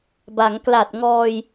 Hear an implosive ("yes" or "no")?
no